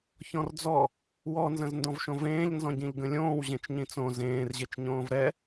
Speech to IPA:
ç ɔ̃ r d͡z ɔ | w ɔ n z ə̃ z n d ɔ̃ v ʃ õ v ẽː ʎ n z ɔ̃ ɟ ĩ ʎ ɡ ə̃ lʲ õː w ʑ ẽ t͡ʃ ɲ ĩ t͡s õ z ẽː r ʑ e t͡ʃ ɲ õː v ɾ ɛ

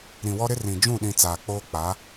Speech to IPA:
ɾ ĩ˨ w ɔ˦ ɾ ɪ˦ r ĩ˨ d͡ʒ ũ˦˨ ɗ ĩ˨ t͡s aː˨ k͡p oː˦ k͡p a˨˦

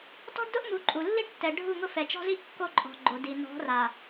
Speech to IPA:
t ɔ̤˦ ɖ d ʊ˦ ʔ m u˨˦ ǃʼ u˨ lː i˦ ɖ tː ɛ˨ ɖʱ u˦˨ ŋ ʊ˦ f ɛ˨ t͡ʃ ɔ̤˦ z i˦ ʔ kː o˦ ǃʼ ɔ̤˨ ɡ͡ǃ o˨ d i˨ n ɔ̤˨˦ r a˨

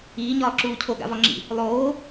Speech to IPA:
iː ɲ ɒː ǁ uː cʰ o ɡ a̰ v ɒ ŋ͡ǁ ḭ | lˠ oː

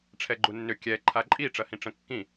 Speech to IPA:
ʈ͡ʂʰ ɛ ɡ͡ǃ u nː ʏ kʲ ɛ ǃʰ a ǃʼ i ʈ͡ʂ ɐ h ĩ ʈ͡ʂ ə̃ kː ĩ

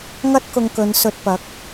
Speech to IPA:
ŋ ɐ˥ t̚ k ʊ˧ ŋ k ɵ˨˧ n s ɵ˧ t̚ p ɐ˨˥ k̚

